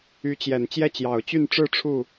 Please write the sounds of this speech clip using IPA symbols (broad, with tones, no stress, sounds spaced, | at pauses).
y˧˥ t͡ɕ j ɛ˨˩ n t͡ɕ j ɛ˥˩ t͡ɕ j ɑ˨˩ ʊ̯ t͡ɕ y˥˧ n ʈ͡ʂ ɻ̩˥˧ ʈ͡ʂʰ u˥˩